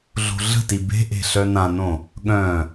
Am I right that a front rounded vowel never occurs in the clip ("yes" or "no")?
no